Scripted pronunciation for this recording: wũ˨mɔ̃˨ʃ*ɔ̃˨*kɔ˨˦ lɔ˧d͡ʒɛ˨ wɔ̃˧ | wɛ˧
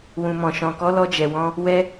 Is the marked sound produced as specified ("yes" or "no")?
yes